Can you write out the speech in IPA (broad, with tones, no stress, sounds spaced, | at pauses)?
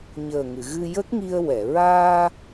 ɲ əː˨˩ ŋ ɨ˨˩˨ ɣ ɨ˧ j ə˦˥ k̚ ŋ i˧ ə̯ w ɛ˨˩˨ ɹ aː˧